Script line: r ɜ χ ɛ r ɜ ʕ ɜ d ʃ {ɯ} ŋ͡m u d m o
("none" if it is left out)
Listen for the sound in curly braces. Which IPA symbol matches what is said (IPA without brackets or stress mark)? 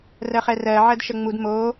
ə